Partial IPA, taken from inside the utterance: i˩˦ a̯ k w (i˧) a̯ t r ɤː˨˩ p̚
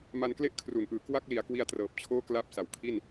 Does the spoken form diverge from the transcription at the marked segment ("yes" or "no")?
no